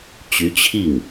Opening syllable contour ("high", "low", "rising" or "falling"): rising